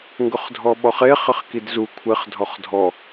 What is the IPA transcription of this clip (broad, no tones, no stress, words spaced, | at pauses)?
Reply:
ŋɡʊχdʱɔɓɔχe χɪχkidzu kʷʰɪχ dʱɔχdʱɔ